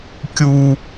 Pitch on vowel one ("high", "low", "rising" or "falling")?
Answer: high